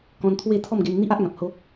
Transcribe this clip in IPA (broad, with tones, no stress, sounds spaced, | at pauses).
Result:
k ɔ̃˧ n t̪ʰ w e˥˧ t̪ʰ ɔ˥˧ m ɡ e˧ n n̪ i˦ ʔ a˦ ʔ ŋ ã˨ p̚ h o˦